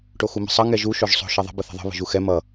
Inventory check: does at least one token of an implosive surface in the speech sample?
no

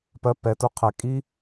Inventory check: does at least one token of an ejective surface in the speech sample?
yes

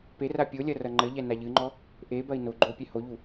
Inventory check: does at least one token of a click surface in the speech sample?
yes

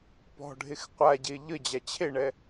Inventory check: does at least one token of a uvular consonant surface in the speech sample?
yes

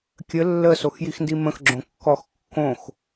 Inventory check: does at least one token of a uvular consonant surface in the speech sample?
no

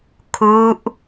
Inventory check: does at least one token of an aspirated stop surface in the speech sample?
yes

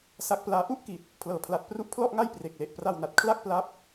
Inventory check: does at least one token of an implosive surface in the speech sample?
no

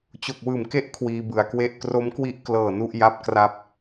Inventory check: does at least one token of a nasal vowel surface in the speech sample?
no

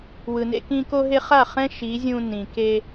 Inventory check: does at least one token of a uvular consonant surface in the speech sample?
yes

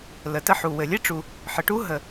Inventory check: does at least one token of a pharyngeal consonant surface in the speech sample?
yes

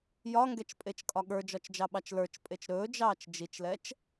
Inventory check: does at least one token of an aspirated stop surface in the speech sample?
no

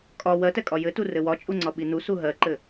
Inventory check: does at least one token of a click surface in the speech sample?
yes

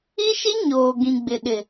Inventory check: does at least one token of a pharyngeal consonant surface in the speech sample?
no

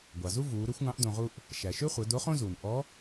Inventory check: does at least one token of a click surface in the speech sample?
no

